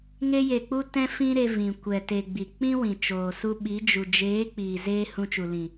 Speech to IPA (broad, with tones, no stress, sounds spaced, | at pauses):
ŋ e˧ j e˨ k͡p u˦ t ɛ̃˦ f ĩ˦ ɾ e˧ v ĩ˨ kʷ ɛ˨ t e˨ ɡ͡b i˨ k͡p ĩ˦ w ĩ˨ t͡ʃ oː˨ s u˧ ɓ i˨˦ d͡ʒ u˨ d͡ʒ eː˨˦ k͡p iː˨ z eː˦ h ũ˧ t͡ʃ u˨ l ĩ˨